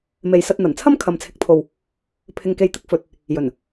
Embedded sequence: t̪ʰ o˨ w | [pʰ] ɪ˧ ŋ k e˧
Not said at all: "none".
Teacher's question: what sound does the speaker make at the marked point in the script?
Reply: pʰ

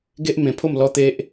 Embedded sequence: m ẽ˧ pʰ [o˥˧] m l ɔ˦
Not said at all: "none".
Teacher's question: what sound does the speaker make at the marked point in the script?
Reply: o˥˧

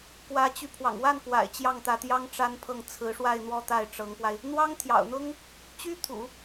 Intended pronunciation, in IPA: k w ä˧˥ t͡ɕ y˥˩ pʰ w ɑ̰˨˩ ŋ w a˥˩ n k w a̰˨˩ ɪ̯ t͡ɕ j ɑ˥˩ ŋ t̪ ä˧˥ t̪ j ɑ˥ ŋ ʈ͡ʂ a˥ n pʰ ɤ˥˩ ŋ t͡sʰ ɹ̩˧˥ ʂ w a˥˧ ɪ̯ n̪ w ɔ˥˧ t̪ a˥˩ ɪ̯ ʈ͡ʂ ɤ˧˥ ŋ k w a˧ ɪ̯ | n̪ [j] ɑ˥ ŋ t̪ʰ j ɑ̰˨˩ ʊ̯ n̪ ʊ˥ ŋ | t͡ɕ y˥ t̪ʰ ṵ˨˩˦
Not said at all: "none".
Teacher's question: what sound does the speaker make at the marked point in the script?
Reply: w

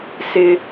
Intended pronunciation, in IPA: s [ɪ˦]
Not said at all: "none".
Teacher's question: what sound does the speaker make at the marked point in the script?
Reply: ɪ˦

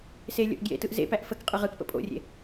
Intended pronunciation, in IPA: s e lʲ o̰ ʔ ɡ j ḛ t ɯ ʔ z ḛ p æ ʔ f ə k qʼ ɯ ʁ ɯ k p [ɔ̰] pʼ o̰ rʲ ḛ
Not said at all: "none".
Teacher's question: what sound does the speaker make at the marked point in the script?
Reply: ə̰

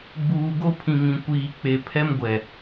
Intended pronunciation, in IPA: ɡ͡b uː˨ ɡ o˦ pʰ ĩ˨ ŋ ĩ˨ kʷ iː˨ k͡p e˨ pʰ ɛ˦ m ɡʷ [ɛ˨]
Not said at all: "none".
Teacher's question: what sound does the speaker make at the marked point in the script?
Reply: ɛ˨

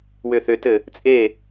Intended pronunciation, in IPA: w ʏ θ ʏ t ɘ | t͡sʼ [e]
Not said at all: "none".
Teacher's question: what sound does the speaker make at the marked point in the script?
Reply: e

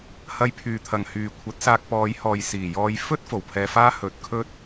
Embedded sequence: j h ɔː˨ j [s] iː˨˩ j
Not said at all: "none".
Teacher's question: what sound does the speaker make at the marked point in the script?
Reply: s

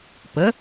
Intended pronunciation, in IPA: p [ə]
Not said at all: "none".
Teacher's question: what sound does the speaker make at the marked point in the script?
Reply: ə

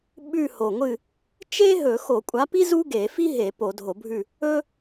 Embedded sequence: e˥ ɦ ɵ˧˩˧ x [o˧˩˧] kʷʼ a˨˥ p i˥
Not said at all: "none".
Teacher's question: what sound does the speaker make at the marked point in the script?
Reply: o˧˩˧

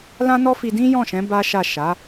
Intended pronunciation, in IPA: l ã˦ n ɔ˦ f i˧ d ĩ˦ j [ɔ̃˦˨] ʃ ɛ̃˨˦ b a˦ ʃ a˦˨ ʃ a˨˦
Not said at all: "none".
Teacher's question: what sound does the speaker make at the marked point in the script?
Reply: ɔ̃˦˨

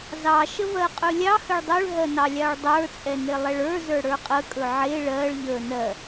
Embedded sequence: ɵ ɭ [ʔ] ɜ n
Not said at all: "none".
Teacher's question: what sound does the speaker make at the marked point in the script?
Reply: ɦ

